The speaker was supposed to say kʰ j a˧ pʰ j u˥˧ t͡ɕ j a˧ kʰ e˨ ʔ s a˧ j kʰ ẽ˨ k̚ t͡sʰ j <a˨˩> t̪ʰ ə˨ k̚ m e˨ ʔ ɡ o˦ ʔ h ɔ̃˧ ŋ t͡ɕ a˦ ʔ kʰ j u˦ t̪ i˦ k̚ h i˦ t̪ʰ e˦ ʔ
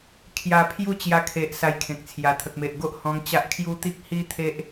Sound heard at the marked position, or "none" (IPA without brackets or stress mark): a˨˩